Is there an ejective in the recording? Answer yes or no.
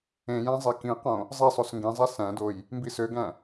no